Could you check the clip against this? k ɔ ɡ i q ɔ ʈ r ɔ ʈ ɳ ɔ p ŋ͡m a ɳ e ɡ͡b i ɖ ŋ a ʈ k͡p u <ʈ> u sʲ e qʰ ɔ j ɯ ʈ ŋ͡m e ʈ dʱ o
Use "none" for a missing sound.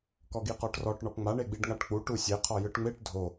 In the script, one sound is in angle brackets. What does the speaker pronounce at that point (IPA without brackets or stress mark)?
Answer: ʈ